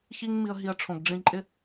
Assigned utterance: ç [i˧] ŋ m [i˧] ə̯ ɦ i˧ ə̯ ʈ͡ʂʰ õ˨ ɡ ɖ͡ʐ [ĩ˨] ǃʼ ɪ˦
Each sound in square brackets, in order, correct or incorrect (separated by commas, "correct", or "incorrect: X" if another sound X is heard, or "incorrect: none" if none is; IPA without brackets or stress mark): incorrect: i˦, correct, incorrect: ĩ˧